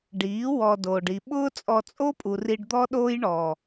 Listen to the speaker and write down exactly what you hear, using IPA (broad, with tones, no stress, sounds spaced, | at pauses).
ɖ iː˨˦ w ɔ˧ d oː˨ ɖ i˨ ɓ ʊː˦ t͡sʼ ɔ˧ t͡sʼ o˦ pʼ u˨ r i˧ ɖ d̪ ɔ˦ ɗ oː˦ j ɳ ɔ˨